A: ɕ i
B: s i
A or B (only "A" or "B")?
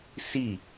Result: B